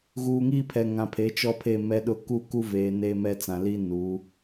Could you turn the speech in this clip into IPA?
ɣ uː˨ ŋ iː˦ pʰ ɛ˨ ŋ ã˨ pʰ e˨˦ t͡ʃ ɔ˦ pʰ e˦˨ m ɛ˦ ɗ ʊ˦ k u˦˨ k u˦ v eː˨ n eː˦ m ɛ˦ t͡s ã˨ l i˦ n u˨˦

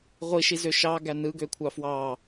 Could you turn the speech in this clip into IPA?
ʁʷ i ʃ i z ø ʃ ɑ ɡ æ n ɯ ɡ ø kʷʰ ɑ f w ɑ

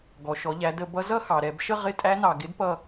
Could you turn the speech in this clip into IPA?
ɡ ɔ˩ ʃ ɔ˩˧ ʎ æ˩˧ d ə˧˩˧ b ʌ˧˥ z ʌ˦˨ x ɑ˩ ɾ ɛ˧˩˧ b ʃ ə˦˨ ʁ ɪ˧˥˧ tʼ æ˧˥ n ɑ˩ ɡ ɪ˧˥ d p ʌ˦˨

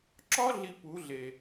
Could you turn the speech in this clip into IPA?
ǁ ɒ˦ ɮ i˦ p u˨˦ ɮ e˨

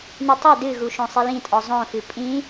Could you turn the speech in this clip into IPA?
n ɨ tˤ a d ɨ ɣ u ʃ õ sˤ i l ĩ tʼ ɔ zˤ õ f ɨ pʼ ĩ

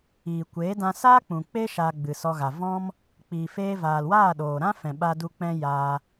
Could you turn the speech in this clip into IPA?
iː˨ kʷ eː˨˦ d ã˧ s aː˦ k͡p ũ˨ k͡p e˦ ʃ a˧ ɡ͡b ɨ˨ s ɔ˧ ɣ a˨ v ɔ̃˦ m | k͡p iː˨ f eː˧ v aː˨ l w aː˦˨ ɗ oː˨ ɾ ã˦ f ɛ̃˨ ɓ a˧ d u˧ k͡p ɛ̃˦ j aː˧

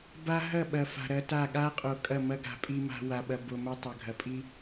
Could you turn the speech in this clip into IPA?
b a˦ ɦ ɐ˦˨ ɓ ɐ˨ f a̤˨ ɾ ɐ˦ t a˦˨ ɠ a˦ qʼ o˨ kʼ ɐ˦˨ m ɐ˦ ɡ a̤˨ pʼ i˨ m a̤˨ w a˨ ɓ ɐ˨ b o˨ m ɐ˦ tˤ ɐ˨ ɡʱ ɐ˨ pʼ i˦

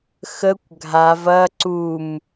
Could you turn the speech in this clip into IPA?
x ə kʷ ɡʱ a v ɐ ǀ u m

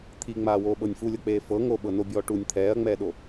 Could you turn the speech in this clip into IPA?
t̪ʰ i ŋ͡m aː w oː ɓ ɤ nʲ f u lʲ ɤ k͡p eː f ɤ ŋ o ɓ ɤ n o bʲ ɔː ʈ u nʲ t̪ʰ ɛː ɐ̯ ŋ͡m ɛː ɗ o

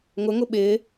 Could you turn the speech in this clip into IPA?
ŋ ʊ ŋ ʊ ɓ ɪː

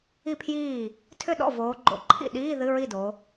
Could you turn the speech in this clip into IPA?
i˥˩ pʰ j iː˥˩ | tʰ ʏ˥˩ ɗ ɔ̰˥˩ v oː˩˧ ɡ͡ǃ o̰˩˧ ǃʰ ḭ˥˩ ɗ iː˧˥˧ ð ɨ˧˥˧ ɹ i˥˩ d o˩˧

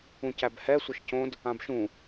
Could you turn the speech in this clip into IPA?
ũ c æ b h ɛ sʷ ɘ ʃ c õ d | ã b ʃ ũ

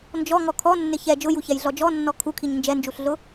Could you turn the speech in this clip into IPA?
n d͡ʒ ɔ ŋ ɔ kʰ ɔ nː ɪ ç ɛ d͡ʒ ʊ j u ç ɛ j ɮ ɔ d͡ʒ ɔ nː ɔ kʰ u kʰ i ɲ n d͡ʒ ɛ n d͡ʒ u ɬ ɮ ʊ

